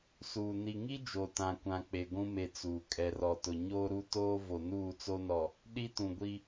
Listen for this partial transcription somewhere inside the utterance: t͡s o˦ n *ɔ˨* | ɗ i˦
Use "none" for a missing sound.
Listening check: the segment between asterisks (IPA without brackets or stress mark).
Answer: ɔ˨